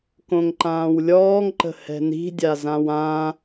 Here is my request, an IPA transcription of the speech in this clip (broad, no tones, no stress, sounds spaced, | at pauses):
k õ ŋ ǃ ãː w lʲ ɔː ŋ ǃ ə̤ h ɛ̤ n i̤ dʲ a z ã w ã